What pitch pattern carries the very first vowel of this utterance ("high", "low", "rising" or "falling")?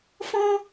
high